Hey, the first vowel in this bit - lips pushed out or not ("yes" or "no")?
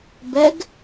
no